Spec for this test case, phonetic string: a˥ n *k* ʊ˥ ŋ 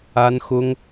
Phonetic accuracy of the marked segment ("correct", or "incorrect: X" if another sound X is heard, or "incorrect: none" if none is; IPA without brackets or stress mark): incorrect: x